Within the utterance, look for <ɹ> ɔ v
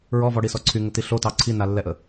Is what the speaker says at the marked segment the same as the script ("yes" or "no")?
yes